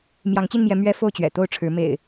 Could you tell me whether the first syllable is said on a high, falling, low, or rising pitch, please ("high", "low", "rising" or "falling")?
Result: rising